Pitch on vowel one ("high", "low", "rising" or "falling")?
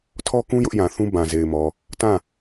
high